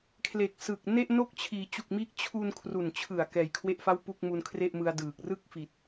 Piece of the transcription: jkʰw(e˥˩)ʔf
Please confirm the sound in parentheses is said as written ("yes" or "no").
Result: yes